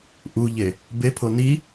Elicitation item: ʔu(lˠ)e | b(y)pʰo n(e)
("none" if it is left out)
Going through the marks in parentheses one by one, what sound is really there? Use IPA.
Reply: ʎ, e, i

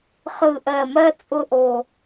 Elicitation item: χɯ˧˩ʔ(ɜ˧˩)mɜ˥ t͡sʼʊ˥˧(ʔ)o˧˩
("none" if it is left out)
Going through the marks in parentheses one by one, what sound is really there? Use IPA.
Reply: ɜ˧˩, ʔ

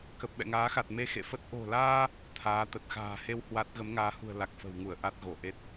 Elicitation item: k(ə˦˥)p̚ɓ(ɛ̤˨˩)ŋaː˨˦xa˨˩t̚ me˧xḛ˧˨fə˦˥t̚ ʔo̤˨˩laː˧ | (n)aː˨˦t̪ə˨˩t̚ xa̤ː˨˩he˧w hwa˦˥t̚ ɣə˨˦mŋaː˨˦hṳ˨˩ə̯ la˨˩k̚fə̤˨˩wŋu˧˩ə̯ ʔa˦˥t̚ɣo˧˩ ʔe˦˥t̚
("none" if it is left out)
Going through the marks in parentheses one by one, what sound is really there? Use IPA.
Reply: ə˨˩, ɛ̰˧˨, t̪ʰ

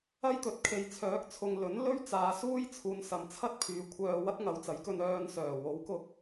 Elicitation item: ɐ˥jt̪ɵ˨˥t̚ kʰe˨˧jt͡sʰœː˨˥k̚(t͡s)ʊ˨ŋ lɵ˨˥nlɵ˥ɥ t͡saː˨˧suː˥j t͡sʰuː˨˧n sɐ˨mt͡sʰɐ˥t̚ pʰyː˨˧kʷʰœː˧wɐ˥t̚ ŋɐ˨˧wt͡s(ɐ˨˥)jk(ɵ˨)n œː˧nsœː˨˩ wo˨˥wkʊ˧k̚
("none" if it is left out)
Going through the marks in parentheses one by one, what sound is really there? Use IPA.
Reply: t͡sʰ, ɐ˨˥, ɵ˧

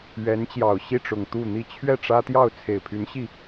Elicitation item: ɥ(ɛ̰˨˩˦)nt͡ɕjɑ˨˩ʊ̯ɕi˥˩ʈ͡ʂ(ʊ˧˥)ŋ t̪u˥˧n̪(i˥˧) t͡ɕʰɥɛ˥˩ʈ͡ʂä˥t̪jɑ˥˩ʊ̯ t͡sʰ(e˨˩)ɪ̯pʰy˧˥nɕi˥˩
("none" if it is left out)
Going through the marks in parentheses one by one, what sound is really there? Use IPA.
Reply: ɛ˧˥, ʊ˨˩, i˥˧, e˨˩

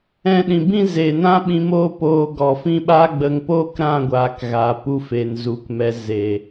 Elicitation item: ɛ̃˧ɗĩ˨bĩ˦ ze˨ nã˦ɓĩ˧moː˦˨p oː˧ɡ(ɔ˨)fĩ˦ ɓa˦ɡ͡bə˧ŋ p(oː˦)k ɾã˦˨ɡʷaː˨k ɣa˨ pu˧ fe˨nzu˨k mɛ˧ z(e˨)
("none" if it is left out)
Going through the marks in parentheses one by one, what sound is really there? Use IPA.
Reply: ɔ˨, oː˦, e˨

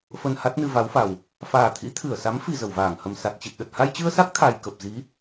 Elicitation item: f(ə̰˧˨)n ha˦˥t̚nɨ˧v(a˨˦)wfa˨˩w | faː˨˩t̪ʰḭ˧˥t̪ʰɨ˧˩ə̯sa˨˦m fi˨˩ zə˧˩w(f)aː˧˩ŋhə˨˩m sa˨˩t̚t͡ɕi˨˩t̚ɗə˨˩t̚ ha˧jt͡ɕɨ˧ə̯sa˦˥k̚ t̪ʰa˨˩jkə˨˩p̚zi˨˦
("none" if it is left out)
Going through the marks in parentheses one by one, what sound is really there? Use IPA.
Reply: ə˧, a˨˦, v

